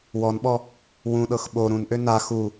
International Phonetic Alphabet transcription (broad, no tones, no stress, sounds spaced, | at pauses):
w ɔ n ɓ ɔ | w ũ ɗ ɤ x ɓ o ɾ ũ n ʔ ø n a x u